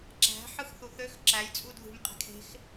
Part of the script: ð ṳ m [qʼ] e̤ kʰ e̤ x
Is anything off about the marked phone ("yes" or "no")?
no